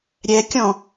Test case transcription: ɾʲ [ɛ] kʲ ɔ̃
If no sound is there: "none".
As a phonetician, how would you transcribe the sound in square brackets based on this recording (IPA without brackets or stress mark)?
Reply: ɛ